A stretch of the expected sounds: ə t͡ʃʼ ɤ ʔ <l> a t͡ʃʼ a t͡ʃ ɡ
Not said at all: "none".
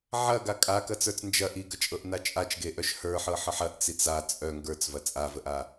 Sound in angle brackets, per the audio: n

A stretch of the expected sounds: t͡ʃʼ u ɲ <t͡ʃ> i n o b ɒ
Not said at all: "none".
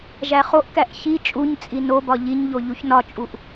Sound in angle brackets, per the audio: t͡sʼ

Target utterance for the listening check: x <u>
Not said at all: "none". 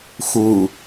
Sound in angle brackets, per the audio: u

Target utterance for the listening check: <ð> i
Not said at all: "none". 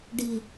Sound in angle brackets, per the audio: ɖ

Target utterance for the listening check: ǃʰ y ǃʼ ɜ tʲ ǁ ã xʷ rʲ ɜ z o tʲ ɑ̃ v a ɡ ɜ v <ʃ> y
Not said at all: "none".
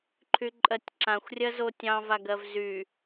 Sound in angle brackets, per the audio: z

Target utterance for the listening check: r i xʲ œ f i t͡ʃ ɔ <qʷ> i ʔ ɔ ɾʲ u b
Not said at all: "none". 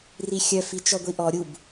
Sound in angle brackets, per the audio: ɡʷ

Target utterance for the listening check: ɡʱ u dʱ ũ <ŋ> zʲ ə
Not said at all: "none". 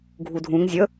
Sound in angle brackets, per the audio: ŋ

